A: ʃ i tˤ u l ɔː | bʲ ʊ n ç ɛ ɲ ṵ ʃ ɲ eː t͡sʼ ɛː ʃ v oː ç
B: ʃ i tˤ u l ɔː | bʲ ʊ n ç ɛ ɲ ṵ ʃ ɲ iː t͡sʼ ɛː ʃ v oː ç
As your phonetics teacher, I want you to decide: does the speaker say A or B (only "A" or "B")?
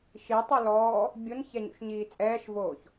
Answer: B